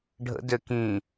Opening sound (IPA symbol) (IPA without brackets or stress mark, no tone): ɖʱ